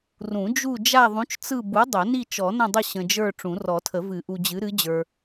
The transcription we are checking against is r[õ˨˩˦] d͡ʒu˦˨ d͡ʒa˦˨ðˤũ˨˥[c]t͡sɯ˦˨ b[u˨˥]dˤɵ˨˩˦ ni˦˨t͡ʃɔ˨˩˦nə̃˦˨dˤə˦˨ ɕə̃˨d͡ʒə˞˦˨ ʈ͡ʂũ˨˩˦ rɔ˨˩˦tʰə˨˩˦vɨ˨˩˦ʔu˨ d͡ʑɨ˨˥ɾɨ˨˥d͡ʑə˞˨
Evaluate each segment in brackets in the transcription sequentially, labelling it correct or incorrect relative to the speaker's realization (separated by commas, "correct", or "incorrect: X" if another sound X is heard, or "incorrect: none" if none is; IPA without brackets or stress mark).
incorrect: ũ˨˩˦, incorrect: t͡ʃ, correct